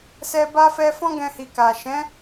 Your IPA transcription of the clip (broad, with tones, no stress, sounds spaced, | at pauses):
s ɛ˧ b a˦ f ɛ˧ f ɔ̃˦ ɡ ɛ̃˧ h i˨ k a˨ ʃ ɛ̃˨˦